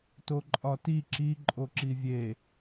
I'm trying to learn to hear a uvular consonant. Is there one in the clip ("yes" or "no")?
no